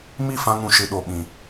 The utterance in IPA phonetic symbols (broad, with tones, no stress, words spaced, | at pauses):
mi˦˨fã˧ŋũ˨ʃɨ˨ ɗo˨ɓĩ˨